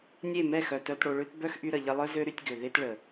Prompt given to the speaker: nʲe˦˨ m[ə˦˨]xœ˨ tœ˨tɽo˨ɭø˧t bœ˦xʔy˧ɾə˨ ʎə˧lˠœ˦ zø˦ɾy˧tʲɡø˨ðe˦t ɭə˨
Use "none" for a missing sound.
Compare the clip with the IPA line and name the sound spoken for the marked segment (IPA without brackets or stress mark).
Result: ɛ˦˨